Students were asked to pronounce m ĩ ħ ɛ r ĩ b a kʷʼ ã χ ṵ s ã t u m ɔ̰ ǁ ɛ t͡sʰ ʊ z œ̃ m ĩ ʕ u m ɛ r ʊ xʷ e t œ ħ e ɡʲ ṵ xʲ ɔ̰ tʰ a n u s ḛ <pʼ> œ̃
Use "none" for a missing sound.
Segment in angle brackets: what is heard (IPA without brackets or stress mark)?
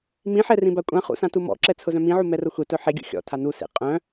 qʼ